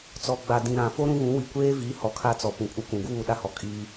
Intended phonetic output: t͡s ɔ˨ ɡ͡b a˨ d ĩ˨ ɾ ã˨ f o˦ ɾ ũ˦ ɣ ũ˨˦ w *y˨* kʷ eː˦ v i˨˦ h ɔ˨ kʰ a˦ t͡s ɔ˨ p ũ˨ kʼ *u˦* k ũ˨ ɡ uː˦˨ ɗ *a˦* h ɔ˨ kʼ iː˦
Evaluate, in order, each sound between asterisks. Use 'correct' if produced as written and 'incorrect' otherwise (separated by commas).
incorrect, correct, correct